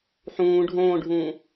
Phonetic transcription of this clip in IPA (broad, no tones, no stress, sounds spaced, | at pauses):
ħ ũː ɖʱ õː ɖʱ ũː